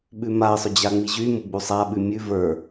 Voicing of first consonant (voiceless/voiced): voiced